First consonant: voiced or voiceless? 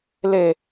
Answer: voiced